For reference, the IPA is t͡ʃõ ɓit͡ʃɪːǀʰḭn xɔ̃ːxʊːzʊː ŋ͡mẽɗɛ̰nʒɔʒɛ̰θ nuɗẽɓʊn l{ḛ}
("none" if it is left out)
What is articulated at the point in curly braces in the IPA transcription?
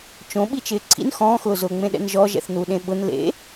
ḛ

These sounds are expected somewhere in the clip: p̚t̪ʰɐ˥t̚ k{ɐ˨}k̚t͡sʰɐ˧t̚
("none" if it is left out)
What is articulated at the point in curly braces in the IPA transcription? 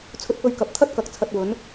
ɐ˨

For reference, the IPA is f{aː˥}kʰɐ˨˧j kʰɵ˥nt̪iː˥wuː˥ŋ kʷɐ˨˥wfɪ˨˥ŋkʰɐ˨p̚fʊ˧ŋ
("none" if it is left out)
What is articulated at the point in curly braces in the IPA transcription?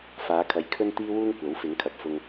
aː˨˧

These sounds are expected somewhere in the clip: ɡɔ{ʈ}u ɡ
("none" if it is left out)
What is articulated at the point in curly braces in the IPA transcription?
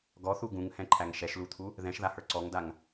θ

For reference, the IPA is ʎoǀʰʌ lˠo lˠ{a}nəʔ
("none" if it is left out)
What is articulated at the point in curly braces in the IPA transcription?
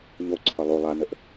a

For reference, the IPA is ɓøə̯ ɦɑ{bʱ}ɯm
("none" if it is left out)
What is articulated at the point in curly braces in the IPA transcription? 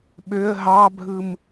bʱ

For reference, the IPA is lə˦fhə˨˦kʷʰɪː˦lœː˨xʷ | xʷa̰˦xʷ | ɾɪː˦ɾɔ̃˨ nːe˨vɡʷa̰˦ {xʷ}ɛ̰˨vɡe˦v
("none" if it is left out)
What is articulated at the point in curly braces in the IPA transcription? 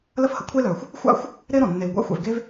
xʷ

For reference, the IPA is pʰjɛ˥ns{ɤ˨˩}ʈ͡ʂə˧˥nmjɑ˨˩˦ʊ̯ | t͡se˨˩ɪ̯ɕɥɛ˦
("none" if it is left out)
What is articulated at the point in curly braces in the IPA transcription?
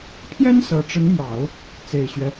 ɤ˨˩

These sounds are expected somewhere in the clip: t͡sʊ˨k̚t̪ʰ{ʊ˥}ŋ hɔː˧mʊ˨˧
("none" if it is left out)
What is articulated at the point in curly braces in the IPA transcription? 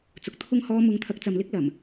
ʊ˥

